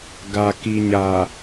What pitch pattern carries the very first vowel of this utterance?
low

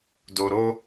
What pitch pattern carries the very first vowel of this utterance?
low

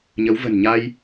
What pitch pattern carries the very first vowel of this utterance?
rising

